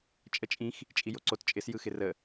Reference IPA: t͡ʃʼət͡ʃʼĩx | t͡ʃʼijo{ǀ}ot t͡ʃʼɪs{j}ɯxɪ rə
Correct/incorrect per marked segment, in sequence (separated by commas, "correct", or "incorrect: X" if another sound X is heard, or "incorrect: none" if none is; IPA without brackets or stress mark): correct, correct